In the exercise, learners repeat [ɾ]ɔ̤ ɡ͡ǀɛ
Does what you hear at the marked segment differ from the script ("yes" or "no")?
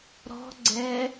no